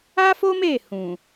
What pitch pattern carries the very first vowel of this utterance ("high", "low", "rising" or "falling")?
high